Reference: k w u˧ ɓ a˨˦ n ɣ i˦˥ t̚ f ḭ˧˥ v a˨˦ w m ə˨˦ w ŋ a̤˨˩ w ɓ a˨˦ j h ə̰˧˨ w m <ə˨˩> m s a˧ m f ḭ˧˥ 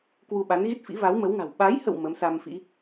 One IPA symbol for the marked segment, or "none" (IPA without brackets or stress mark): ə˨˦